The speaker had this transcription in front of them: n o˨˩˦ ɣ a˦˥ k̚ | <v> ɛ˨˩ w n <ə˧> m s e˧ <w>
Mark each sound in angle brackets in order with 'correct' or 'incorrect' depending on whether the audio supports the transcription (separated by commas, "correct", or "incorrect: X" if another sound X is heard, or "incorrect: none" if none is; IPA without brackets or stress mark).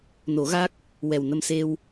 incorrect: w, correct, correct